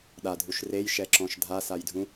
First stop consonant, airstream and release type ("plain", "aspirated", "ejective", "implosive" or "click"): implosive